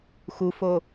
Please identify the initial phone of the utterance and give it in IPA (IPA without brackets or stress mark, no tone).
x